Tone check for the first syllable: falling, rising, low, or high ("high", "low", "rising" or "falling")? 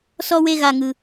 high